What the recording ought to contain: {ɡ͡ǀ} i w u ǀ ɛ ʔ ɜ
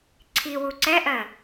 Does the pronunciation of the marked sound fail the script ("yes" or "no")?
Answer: yes